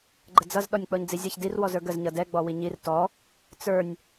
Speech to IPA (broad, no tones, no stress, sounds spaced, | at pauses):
ɡ͡ǃ ə d͡z ʌ z ɗ ɔ nʲ k͡p ɔ ɲ d͡z i zʲ ʌ ç d i r w ɔ z ə˞ ɡ ə z ɲ ʌ d ɛ ɡ͡b ɔ w i ɲ i r t ɔ | t͡s ə˞ nʲ